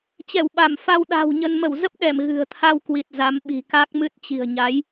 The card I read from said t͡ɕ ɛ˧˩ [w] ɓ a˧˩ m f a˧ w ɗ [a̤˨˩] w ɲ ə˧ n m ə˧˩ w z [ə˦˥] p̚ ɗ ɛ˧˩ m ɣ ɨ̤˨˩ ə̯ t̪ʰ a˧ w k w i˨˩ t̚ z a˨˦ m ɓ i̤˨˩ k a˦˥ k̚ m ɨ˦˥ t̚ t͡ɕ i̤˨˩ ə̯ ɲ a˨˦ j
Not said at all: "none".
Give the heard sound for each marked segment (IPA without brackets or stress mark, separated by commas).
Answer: w, a̤˨˩, ə˦˥